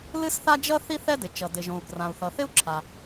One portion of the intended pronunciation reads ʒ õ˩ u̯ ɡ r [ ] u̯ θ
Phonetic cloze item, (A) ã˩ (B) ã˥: A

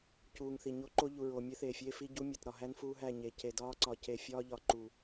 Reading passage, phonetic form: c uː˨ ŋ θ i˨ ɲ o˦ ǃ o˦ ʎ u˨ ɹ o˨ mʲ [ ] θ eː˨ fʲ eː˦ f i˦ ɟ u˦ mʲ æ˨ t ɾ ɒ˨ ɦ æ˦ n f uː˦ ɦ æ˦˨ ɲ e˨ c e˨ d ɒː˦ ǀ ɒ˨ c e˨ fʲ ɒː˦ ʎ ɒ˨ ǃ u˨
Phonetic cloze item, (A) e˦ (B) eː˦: A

